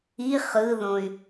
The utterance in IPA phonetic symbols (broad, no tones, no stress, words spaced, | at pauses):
i χɯðõy̯